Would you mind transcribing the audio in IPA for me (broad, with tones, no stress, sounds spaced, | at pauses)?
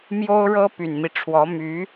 m j o˥ ʊ̯ ɻ ɤ˥ p y˨˩ n m i˦ ʈ͡ʂʰ w ɔ˧˥ m y˧˥